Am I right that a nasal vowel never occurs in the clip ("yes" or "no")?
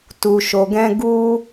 no